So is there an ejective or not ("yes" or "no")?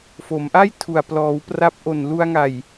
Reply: no